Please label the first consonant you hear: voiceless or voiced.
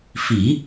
voiceless